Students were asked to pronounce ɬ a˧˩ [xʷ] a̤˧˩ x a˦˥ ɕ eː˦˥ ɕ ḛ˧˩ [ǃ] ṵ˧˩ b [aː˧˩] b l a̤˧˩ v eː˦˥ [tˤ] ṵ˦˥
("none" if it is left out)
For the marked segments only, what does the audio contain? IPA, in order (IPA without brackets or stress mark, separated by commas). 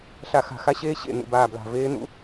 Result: x, n̪, aː˧˩, n̪